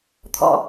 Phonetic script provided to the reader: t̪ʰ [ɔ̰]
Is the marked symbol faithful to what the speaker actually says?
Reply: yes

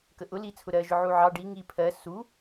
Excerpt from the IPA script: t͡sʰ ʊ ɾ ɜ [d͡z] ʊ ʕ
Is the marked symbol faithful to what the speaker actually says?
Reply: no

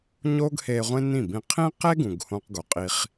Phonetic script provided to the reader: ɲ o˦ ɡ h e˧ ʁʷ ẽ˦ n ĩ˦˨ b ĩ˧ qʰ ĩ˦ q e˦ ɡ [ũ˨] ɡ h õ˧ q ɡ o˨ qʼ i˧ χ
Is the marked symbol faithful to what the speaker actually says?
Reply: yes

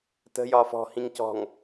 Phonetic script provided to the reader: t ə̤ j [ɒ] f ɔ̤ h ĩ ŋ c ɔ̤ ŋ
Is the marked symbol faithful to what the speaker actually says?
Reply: yes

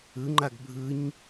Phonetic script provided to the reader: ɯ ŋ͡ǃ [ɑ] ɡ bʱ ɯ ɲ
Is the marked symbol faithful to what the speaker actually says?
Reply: no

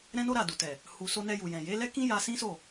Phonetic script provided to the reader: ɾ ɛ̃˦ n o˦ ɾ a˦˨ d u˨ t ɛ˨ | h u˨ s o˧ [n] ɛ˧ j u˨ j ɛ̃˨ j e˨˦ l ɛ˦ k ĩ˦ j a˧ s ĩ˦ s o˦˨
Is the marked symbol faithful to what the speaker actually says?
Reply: yes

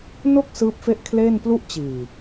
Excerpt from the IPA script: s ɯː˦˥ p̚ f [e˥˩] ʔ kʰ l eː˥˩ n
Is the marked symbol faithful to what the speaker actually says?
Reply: yes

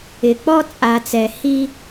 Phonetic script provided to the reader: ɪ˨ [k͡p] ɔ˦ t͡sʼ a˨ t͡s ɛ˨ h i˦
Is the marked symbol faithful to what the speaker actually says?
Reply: yes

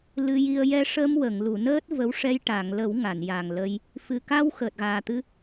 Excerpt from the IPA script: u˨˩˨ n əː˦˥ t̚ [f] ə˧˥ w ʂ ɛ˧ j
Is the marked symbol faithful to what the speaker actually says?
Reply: no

